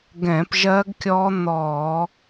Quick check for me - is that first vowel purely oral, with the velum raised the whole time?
no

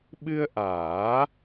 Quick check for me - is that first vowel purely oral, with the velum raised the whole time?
yes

